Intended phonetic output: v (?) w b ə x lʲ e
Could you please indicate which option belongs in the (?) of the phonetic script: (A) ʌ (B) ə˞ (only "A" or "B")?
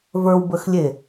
B